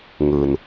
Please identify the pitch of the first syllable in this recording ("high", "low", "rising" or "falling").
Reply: low